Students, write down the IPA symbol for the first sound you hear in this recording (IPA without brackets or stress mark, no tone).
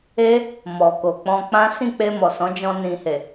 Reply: e